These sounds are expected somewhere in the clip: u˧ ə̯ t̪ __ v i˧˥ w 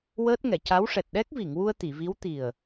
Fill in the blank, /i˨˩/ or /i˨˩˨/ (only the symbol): i˨˩˨